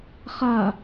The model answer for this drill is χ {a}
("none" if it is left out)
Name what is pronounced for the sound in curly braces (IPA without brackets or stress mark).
a